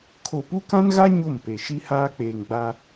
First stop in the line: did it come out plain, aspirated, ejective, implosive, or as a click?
aspirated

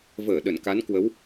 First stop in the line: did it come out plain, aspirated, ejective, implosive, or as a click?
implosive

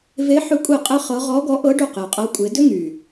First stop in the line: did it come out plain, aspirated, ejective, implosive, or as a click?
ejective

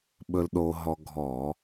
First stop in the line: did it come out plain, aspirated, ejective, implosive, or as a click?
implosive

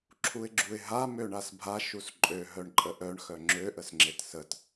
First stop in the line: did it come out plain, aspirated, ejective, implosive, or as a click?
click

